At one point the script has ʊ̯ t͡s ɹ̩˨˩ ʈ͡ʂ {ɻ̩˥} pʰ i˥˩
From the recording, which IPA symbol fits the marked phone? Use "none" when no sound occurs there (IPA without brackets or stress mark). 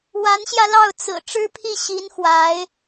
ɻ̩˥